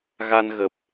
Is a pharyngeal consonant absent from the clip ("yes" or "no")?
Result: yes